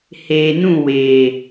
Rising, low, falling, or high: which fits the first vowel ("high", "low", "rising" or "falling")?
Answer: low